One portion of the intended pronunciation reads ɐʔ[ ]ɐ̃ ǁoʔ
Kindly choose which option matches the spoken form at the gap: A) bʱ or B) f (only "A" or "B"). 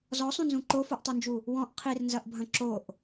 A